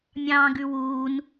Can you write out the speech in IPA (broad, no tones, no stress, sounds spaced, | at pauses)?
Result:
mʲ ɑ̃ː ɡ ʉ w uː n